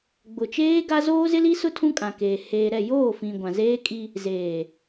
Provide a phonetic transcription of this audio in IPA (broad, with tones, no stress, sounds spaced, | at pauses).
ɡ͡b ʊ˨ t͡ʃ eː˦ ɡ a˦ z oː˦ z ɪ˦ l i˦ s ʊ˦ tʰ ũ˦ kʼ ã˨ k eː˨ h eː˨ ɾ ɛ˦˨ j oː˦˨ f ĩ˨ ɡʷ ã˨ z eː˦ kʼ i˦ | z eː˨